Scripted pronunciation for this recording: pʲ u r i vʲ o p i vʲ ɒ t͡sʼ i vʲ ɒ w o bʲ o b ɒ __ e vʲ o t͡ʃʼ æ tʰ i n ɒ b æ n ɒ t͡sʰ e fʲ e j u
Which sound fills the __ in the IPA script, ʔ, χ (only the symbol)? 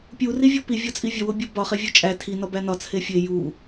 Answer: χ